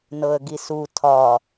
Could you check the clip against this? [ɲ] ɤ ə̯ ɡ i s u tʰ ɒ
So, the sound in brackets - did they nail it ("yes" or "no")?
no